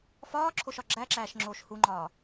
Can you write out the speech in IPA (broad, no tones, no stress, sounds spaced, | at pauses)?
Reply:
f ɒː ǁʰ o ʃ ɒ ɡ͡ǁ æ ǁ æː ʃ ŋ͡ǁ oː ʃ h u ŋ͡ǃ ɒː